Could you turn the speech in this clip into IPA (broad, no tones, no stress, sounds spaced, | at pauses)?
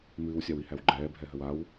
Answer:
m ɨː w sʲ a w i h æ w ɡ͡ǃ ɛː bʱ ɛ ɦ ə w a w